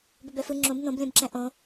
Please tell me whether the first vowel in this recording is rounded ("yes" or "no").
yes